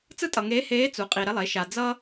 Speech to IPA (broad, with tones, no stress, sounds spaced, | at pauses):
t͡s ɯ˥ tʼ ʌ˨ ŋ eː˧˥ h eː˧˥ t͡s u˩˥ qʼ i˨ ɾ ɛ˥ lˠ e˩˥ ʃ a˨ d͡z ʌ˥